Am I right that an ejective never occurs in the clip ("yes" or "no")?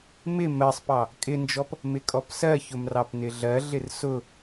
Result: no